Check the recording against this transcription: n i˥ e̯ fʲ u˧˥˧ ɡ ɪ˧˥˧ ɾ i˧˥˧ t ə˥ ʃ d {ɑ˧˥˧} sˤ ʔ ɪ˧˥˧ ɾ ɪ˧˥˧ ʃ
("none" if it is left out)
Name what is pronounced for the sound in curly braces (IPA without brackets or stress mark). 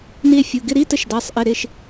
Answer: ɑ˧˥˧